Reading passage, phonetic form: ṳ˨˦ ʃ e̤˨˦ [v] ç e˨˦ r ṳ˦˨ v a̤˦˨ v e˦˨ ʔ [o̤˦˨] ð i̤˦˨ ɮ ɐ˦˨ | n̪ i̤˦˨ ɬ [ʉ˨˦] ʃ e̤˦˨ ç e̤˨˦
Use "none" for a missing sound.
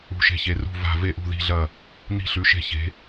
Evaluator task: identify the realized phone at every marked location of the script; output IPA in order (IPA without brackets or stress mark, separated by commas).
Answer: none, ṳ˦˨, ʉ˨˦